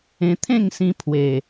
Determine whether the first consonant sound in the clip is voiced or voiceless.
voiceless